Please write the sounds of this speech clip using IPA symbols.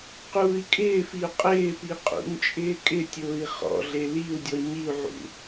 q uː i̯ kʼ ɪː f i u̯ qʼ ɪː p i qʼ ṵ ɲ t͡ʃʼ ɪː kʼ ɪ tʲ ʊː i̯ χ ɔ̰ ɮ e l i u̯ dʲ ɔ ɲ i u̯ ʕ ṵ

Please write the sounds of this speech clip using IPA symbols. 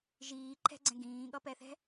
ʒ iː ǃʰ ɛ̤ ɡ͡ǀ ɛ̃ ɡ ĩː ɠ ʌ p ɛ θ ɛ̤

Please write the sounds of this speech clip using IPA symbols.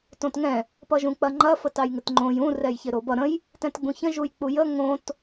t õ t ŋ ɛ̃ | p ʌ ʒ ũ k͡p ɐ ŋ͡ǃ ɐ f ə t ɑ j ŋ ɪ t ŋ͡ǃ õ j ũ r ɛ j ç ɪ ɾ o b ʌ ɾ ə̃ j | t ɛ̃ t ɡ͡b ũ ç ə̃ ʒ u j k͡p u j ə ŋ õ t

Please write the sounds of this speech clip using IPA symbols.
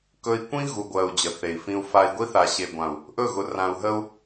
k ɵ˦ i̯ kʷ ĩ˦ ɣ u˨ ɡʷ ɜ˨ u̯ d͡ʑ ə˨ θ e˨ i̯ f ĩ˦ u̯ f a˦ i̯ ɡʷ i˦ θ a˨ ɕ e˨ ɡʷ ã˨ u̯ | ʔ ɵ˦˨ ɣ ʊ˨ r ã˨ u̯ ɦ ə˦ u̯

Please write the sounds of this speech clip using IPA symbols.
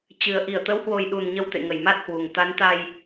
t͡ɕ ɨ˨˩ ə̯ ʔ i˧˩ ə̯ t̪ ə˨˦ w h w o˨˩ j ɗ u˨˩ n ɲ ə˧ w t̪ ḛ˧˨ ŋ ə˧˩ j m a˦˥ t̚ h w u˨˩ ŋ t̪ a˨˦ n t̪ a˧ j

